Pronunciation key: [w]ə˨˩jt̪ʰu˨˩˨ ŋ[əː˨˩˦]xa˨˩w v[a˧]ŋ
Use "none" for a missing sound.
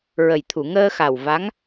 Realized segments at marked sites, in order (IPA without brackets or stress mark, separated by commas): ɹ, əː˧, a˧˥